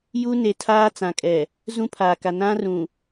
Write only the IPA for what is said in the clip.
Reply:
j u˦ n e˨ tʰ aː˦ t͡s ã˨ kʼ ɛ˨ | z ũ˦ pʰ aː˨ k a˨ n ã˦ r ũ˨

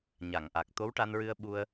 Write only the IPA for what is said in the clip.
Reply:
ɲ a˨˩˨ ŋ ʔ a˨˩ k̚ t̪ o˧˥ w ʈ a˧ n ɹ ɨ˧ ə̯ ɓ u˧ ə̯

